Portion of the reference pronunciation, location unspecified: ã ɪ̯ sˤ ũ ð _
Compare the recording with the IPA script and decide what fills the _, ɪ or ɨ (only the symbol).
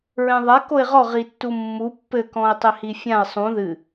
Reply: ɨ